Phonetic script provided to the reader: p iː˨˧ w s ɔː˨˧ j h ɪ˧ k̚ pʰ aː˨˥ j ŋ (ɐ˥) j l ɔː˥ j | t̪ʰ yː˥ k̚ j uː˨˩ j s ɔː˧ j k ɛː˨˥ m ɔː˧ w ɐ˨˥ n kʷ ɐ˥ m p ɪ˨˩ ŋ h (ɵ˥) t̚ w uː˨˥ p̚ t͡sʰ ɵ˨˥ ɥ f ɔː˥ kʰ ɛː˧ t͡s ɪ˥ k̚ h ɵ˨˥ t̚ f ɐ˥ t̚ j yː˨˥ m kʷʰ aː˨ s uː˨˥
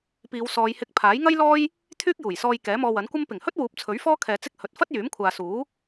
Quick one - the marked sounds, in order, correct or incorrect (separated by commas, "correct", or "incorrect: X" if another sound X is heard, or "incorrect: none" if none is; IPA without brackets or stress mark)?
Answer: correct, correct